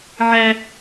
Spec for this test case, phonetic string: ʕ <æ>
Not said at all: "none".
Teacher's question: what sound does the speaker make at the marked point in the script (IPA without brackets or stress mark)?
æ